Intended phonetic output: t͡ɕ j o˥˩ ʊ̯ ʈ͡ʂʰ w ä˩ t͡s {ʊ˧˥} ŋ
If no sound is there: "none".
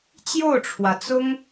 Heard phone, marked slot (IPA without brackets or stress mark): ʊ˥